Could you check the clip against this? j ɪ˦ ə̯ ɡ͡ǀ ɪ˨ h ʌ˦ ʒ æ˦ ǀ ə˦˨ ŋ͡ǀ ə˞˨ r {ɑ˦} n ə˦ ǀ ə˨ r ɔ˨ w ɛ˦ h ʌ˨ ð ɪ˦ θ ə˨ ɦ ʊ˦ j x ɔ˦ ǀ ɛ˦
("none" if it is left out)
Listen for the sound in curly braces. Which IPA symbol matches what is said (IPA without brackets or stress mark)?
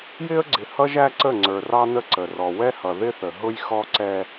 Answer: ɑ˦